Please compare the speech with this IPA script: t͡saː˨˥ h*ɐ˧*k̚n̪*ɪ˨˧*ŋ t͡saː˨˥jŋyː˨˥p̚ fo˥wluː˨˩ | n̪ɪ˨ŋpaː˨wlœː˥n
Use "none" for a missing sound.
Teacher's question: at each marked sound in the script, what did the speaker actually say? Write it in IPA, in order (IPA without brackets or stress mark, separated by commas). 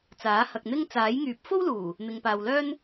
ɐ˨, ɪ˥